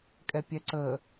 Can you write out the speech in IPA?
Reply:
kʼ ɛ pʲ ɛ ǀ ə

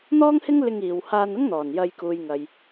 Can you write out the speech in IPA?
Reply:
n̪ ɔː˥ ŋ h ɪ˥ ŋ l ɪ˧ ŋ iː˨ w h aː˧ n ʊ˥ ŋ n̪ ɔː˨˩ n j ɐ˧ j k uː˨ j ŋ ɐ˨ j

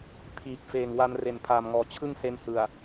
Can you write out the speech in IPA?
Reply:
pʰ iː˨˩ k̚ f eː˨˩ ŋ w a˧ n r e˨˩ n pʰ aː˨˩ m ŋ ɔː˨˩ t͡ɕʰ ɯ˥˩ ŋ s e˦˥ n h ɯ˨˩ a̯

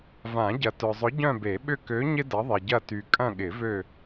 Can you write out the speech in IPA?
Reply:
v ã˨˩˦ ɟ ɐ˨ t œ˨ zˤ ʊ˨˥ ɟ œ̃˦˨ b e˨˩˦ ɓ ʏ˦˨ k ø˨˥ ɲ ɪ˥ d ɐ˨˥ ðˤ ɪ˨ ɟ ɐ˦˨ t y˨ kʼ ɐ̃˦˨ ɠ ɪ˨˩˦ v ø˦˨

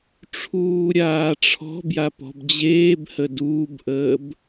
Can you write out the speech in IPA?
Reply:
ʈ͡ʂʰ uː ɾʲ aː ʈ͡ʂʰ ɔ̤ b j a p ɔ̤ b d͡ʑ eː b h ə d uː b ʔ əː b

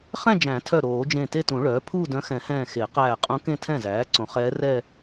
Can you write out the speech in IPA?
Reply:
χ ɛ̃˥˧ d͡ʒ æ̃˨˩˦ tʰ œ˧˩ ɾ oː˨˩˦ d͡ʒ ẽ˧˩ t e˥˧ t ũ˨˩˦ ɭ œː˩˥ pʰ uː˥˧ d œ̃˧˥ x ɛ̃˨˩˦ h ɛ̃ː˧˩ x e˨˩˦ q æː˧˩ qʼ ũ˧˥ k ẽ˥˧ tʰ ɛ̃˥˩ z æː˩˥ ǀ õ˩˥ χ ɛː˧˥ r ɛ˥˧

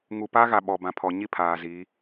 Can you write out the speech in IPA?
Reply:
ŋ u˨ p a˦ ɣ a˨ ɓ ɔ˨ b ã˨ pʰ ɔ˨ ɲ i˦ pʰ aː˨ z i˨˦

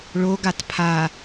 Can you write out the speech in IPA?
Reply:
ɭ o ɡ a t pʰ a

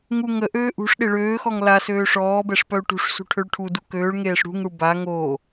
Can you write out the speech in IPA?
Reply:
ŋ u ŋ ə ʔ øː ʔ ṳ ʂ ɗ e ɭ øː x ɔ ŋ l a s øː ʂ ɔː b ɛ ʂ p œ u̯ ʈ ṳ ʂ s ṳ ʈʰ ø ɭ ʈʰ u d u k øː ɭ ŋ eː ʂ ɽ ṳ ŋ ɽ u b a ŋ o

